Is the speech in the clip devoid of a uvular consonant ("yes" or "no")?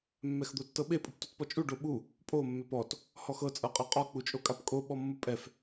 no